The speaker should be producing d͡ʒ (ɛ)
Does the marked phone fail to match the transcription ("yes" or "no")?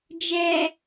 no